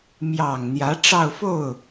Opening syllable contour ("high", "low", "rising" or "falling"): low